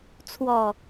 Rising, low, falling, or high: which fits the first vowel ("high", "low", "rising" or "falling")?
low